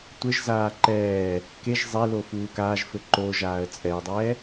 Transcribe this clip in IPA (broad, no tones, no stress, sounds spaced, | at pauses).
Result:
tʷ ɘ ʒ z aː ǃ ɛː | k e ʒ zˤ e l o f uː k aː ʒ f ɘ ǃ o ʒ aː ə̯ t͡sʼ ɛ ə̯ dˤ ɛː